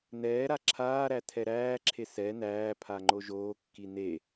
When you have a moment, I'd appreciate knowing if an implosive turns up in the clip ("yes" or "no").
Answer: no